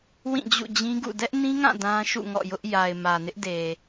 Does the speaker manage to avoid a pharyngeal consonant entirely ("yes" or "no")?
yes